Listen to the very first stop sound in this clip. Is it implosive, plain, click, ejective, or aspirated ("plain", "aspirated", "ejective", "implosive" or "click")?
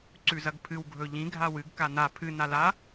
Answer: click